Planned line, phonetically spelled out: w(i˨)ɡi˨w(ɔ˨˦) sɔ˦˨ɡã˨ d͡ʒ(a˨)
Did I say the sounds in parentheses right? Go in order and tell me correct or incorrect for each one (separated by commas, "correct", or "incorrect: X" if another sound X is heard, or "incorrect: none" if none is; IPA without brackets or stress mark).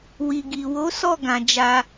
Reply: correct, incorrect: o˨˦, incorrect: a˧